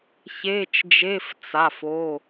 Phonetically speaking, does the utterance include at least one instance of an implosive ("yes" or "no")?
no